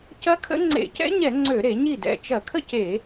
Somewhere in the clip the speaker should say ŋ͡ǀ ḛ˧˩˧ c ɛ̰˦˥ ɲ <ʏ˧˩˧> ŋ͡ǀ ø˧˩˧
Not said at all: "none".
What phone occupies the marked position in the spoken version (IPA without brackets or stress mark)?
ɛ˧˩˧